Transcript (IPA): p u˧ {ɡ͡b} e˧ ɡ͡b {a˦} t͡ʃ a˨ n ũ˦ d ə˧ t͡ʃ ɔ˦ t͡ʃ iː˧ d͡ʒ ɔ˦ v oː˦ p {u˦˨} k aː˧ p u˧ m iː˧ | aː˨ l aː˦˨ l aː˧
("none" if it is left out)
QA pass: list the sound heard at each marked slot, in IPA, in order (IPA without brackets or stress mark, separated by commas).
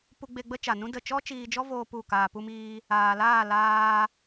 ɡ͡b, ə˦, u˦˨